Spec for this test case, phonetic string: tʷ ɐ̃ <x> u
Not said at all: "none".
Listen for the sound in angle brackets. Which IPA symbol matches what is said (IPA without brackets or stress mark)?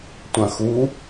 x